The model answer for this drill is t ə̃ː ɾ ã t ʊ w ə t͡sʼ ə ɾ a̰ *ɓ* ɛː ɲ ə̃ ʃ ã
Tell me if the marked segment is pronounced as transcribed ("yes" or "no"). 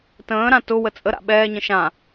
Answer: yes